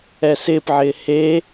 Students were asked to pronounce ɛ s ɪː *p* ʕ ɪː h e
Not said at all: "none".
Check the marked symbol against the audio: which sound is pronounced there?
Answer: p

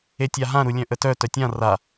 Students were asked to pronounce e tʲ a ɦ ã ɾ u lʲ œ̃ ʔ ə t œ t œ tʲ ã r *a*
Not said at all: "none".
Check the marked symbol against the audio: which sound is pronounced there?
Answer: a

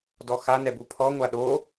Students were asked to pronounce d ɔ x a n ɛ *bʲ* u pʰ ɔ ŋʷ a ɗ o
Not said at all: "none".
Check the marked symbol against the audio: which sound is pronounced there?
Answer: b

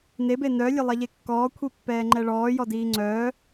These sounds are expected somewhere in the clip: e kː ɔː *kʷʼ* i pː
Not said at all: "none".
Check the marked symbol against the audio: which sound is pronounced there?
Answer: kʷʰ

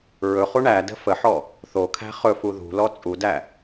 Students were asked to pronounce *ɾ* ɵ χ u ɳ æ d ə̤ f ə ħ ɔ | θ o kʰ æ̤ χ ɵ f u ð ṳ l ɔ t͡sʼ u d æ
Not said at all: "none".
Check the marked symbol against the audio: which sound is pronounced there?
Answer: ɹ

